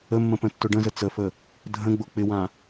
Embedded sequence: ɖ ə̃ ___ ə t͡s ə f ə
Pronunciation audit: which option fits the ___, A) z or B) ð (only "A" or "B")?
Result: A